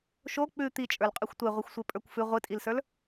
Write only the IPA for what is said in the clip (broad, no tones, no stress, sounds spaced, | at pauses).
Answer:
ʃ o k͡p ʉ t̪ i t͡ʃʼ ə˞ l qʼ ʉ xʷ tʷ e ʁʷ ɨ xʷ sʷ e pʼ ə˞ kʷ f ʉ ʁʷ ɨ tʼ i l s ə˞ l